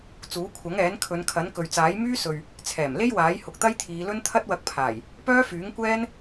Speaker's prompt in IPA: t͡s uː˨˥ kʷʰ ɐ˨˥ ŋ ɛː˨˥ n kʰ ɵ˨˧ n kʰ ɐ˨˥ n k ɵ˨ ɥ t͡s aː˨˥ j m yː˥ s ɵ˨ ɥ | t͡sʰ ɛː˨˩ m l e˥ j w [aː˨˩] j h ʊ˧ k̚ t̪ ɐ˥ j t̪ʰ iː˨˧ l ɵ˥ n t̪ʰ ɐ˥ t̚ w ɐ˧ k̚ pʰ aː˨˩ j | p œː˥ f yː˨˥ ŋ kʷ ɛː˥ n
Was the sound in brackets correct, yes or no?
no